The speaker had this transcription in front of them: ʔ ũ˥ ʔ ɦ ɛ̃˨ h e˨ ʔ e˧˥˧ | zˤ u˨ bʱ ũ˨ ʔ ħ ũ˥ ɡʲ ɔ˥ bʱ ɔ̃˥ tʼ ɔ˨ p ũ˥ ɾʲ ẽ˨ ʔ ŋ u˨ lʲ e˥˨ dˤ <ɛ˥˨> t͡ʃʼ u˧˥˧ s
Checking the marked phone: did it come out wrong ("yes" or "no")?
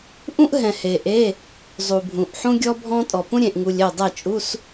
no